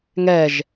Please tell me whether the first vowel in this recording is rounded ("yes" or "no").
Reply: no